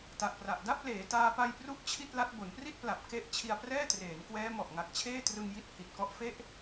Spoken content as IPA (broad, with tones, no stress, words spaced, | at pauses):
ta˨˩ʔpra˨˩ʔ da˥˩p̚leː˩˦ taː˧pa˧j pru˦˥ʔ t͡ɕʰi˥˩t̚la˦˥t̚ bo˩˦npri˥˩t̚pla˨˩p̚ ke˥˩ʔ t͡ɕʰi˧a̯prɛː˥˩treː˩˦n kwɛː˦˥ mɔ˨˩ʔŋa˨˩k̚t͡ɕʰeː˥˩trɯ˧ŋ ji˥˩t̚hi˨˩t̚ kɔ˦˥ʔfe˥˩ʔ